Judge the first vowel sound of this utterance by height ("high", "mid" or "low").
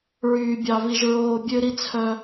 high